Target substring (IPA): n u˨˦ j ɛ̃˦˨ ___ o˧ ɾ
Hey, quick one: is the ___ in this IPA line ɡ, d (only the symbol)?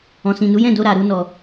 d